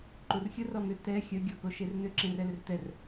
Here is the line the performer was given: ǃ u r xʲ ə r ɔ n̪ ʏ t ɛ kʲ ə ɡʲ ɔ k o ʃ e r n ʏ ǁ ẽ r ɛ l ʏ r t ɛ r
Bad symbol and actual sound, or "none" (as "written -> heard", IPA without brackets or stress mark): kʲ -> xʲ